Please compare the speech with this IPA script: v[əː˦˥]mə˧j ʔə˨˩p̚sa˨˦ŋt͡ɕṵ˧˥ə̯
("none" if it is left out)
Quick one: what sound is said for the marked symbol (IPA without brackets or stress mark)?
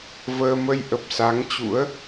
əː˧